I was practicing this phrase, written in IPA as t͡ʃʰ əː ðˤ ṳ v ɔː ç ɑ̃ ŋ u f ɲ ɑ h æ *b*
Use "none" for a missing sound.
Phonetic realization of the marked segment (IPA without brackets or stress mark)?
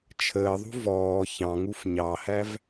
v